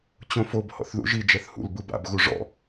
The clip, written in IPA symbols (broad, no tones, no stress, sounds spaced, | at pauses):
t͡ɕ õ f o b h ɔ̰ θ ð ṵ ʒ i d͡ʒ ɛ θ h ṵ l b ɯ b a̰ b ɣ u ʐ ɔ̰